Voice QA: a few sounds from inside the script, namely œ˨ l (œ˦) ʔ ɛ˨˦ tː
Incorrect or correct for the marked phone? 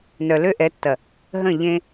incorrect: ø˦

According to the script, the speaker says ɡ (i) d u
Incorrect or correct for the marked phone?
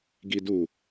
correct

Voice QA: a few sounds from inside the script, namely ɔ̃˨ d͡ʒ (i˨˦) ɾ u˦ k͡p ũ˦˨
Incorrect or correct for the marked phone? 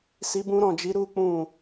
correct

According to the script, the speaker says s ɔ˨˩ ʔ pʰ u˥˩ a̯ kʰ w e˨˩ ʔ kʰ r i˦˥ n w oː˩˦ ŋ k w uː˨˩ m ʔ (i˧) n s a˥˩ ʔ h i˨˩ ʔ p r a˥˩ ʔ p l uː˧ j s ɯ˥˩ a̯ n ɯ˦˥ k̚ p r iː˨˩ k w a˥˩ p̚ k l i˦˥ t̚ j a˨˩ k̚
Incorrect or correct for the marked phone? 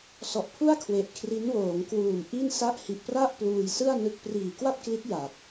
incorrect: i˥˩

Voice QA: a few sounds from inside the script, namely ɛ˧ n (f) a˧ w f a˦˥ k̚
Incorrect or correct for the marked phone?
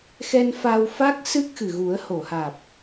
correct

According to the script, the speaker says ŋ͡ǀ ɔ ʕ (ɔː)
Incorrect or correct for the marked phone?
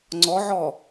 correct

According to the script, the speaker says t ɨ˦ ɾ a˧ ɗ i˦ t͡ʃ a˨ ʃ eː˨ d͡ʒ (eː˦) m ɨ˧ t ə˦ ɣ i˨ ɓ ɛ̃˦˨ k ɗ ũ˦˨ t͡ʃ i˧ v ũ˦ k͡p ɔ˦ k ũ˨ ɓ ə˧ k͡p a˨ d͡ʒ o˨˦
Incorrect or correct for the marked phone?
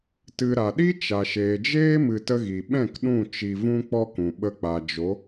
correct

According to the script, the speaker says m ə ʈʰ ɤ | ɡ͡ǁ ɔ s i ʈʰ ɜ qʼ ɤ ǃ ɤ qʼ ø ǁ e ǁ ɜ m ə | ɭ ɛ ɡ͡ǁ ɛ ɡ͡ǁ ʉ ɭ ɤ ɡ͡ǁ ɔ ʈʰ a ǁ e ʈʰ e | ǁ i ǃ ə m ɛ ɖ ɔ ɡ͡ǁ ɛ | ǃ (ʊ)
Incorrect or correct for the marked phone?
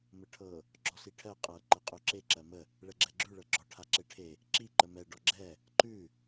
incorrect: ʉ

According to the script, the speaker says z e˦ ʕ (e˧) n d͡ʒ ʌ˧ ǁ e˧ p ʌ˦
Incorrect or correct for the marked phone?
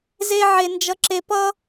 correct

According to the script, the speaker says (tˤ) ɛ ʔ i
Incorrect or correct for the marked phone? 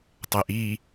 correct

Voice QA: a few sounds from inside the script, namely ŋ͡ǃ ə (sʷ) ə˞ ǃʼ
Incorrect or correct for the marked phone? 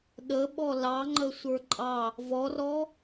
correct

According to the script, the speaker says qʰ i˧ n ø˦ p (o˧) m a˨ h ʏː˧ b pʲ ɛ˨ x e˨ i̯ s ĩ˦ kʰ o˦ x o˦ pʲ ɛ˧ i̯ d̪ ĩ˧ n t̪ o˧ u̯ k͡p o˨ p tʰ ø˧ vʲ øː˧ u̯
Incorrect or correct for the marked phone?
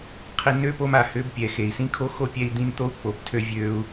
correct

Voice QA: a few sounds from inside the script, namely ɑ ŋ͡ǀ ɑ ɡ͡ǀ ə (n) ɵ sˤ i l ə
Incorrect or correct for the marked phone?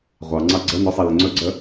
correct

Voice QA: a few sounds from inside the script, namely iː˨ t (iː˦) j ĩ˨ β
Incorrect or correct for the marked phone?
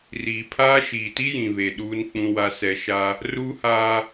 incorrect: i˦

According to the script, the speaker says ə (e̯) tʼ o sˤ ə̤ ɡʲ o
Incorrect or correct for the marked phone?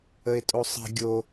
correct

